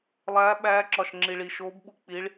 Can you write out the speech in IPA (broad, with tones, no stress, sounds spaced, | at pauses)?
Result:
lˠ æː˧˥ ɓ æː˧˥ ǁ ɒ˨ ʃ ŋ͡ǁ i˨ ɭ i˨ ʃ oː˧˥ b ɓ u˨ k͡p i˧˥ ɭ